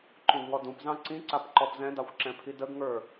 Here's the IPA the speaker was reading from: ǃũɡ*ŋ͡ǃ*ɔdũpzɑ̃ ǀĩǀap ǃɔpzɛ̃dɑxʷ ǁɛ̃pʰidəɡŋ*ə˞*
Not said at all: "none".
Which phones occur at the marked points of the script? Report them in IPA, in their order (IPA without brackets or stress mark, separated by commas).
ŋ, ə˞